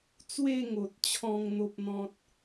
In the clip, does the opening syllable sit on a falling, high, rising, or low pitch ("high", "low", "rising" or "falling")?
falling